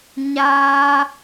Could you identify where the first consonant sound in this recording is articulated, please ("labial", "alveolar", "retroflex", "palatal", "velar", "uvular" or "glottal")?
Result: palatal